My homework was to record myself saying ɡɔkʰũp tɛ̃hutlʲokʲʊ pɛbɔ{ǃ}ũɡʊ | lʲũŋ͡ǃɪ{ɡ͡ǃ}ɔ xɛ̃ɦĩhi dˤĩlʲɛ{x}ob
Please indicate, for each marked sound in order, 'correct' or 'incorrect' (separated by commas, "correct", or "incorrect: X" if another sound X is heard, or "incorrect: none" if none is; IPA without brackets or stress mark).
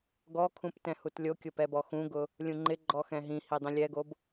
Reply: incorrect: x, correct, incorrect: ɡ